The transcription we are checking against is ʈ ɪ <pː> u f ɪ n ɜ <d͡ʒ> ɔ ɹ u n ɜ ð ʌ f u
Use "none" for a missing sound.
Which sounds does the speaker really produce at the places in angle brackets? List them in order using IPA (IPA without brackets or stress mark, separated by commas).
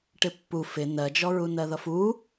pː, d͡ʒ